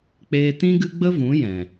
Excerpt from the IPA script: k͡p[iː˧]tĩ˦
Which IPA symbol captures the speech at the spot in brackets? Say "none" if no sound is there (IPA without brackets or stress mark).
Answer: eː˧